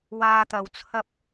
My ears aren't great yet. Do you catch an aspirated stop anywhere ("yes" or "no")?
yes